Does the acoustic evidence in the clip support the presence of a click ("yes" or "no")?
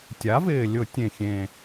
no